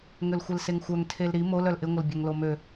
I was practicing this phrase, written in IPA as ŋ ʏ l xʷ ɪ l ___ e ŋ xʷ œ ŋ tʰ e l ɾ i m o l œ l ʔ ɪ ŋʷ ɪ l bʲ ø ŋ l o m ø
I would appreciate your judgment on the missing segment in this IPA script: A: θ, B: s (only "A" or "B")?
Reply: B